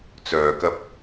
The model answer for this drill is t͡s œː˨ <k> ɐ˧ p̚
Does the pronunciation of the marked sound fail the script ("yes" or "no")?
no